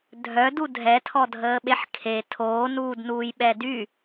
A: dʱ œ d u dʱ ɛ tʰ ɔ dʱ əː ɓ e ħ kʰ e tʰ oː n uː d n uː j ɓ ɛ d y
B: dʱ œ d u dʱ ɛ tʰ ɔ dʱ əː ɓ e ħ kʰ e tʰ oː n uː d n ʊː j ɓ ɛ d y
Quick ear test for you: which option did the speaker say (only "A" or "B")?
A